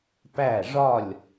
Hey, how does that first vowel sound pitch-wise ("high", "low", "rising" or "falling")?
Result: falling